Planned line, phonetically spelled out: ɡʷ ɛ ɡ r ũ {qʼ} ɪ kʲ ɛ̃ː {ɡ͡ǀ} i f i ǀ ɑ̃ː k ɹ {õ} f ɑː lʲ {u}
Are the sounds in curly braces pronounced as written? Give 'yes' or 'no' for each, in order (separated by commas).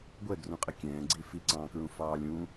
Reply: yes, yes, no, no